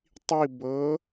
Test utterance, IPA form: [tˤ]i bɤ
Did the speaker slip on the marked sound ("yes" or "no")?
no